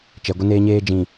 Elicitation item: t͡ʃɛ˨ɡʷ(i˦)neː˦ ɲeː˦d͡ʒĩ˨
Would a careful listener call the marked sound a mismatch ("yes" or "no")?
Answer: yes